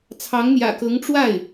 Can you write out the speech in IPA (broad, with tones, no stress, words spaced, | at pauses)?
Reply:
t͡sʰɑ˧˥ŋn̪jä̰˨˩kɤ˧˥ŋ ʈ͡ʂwa˥˩ɪ̯